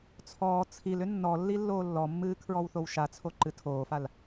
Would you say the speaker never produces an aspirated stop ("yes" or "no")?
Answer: no